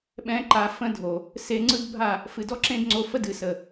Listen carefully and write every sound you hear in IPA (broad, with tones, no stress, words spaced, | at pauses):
ɓɛ̃˦ǃa˧ fə̃˦dʱo˨ | se˧ŋ͡ǀɯ˦d bʱa˦˨ | fɨ˧ dɔ˦ǁẽ˦dŋ͡ǀo˧fə˦ dɨ˨sə˨